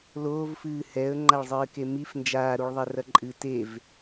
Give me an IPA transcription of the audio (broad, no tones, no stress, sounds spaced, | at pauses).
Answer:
l oː v f ɨː h ɛ ə̯ ŋ͡ǃ a ɭ zˤ ɨː k e m i f n d͡ʒ aː ɾ u ɭ ðˤ ɛ r ɐ ǃʼ ɨ t e v